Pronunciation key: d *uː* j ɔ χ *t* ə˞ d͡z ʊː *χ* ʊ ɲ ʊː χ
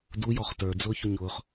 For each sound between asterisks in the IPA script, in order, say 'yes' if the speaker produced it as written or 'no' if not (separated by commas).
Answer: no, yes, no